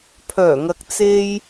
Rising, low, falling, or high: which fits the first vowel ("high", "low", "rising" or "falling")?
low